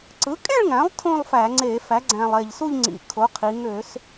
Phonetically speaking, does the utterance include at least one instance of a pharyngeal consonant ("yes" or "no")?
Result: no